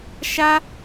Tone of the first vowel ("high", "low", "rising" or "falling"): high